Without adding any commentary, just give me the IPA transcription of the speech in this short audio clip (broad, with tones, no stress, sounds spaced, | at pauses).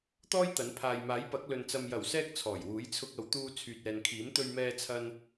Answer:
t̪ ɔː˥ j t̪ ɐ˨˥ n pʰ aː˨ j m aː˨˥ j p ɐ˨˥ k̚ l ɵ˧ n t͡s ɐ˧ m j ɐ˨˩ w s ɛː˧ k̚ t͡sʰ ɔː˨˩ j w uː˨˥ j t͡sʰ ʊ˧ k̚ ɐ˨ w t̪ uː˧ t͡sʰ yː˨ t̚ ɛː˨ n kʰ iː˨˥ m t̪ ɵ˧ ɥ m ɛː˧ t͡sʰ ɐ˧ n